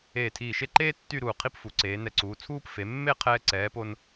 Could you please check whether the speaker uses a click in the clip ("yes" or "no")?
yes